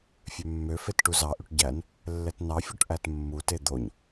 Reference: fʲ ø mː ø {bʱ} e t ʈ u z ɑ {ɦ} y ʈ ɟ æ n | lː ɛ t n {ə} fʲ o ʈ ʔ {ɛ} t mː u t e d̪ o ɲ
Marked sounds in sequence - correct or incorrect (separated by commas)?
incorrect, incorrect, incorrect, incorrect